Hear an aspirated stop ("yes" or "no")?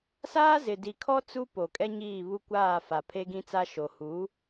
yes